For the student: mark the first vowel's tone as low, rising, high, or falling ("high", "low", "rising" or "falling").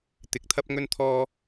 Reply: rising